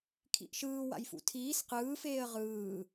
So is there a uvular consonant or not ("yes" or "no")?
yes